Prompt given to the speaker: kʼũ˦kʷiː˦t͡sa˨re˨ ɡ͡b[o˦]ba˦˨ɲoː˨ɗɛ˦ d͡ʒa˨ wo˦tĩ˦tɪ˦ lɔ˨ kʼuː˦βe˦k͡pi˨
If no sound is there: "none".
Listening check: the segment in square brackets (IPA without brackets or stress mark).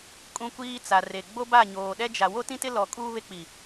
o˦